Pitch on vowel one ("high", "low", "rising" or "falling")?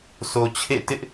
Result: low